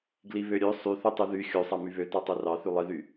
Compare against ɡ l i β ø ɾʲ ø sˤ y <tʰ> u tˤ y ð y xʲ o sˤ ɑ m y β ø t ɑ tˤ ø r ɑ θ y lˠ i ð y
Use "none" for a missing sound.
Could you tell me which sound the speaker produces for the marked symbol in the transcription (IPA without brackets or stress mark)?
θ